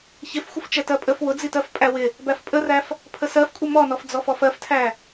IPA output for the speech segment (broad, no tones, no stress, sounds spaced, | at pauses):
ç ɪ f xʷ ɪ f t͡ʃ ɛ t ɜ pʼ ə f w ʊ d͡z i t ɜ f pʼ æ w ɪ | b æ f pʼ ə r æ f | pʰ ə s ɜ f kʷʼ ʌ m ɔ n ɔ f d͡z ɔ f ɔ f ɜ f tʰ æ